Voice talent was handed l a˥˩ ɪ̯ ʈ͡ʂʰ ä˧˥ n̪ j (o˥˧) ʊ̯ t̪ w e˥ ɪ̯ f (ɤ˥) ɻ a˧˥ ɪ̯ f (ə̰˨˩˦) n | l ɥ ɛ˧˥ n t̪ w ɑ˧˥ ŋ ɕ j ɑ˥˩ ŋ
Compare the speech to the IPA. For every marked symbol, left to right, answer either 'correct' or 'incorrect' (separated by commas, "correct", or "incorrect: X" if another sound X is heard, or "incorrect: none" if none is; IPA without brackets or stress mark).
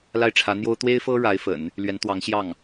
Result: incorrect: o˥, correct, correct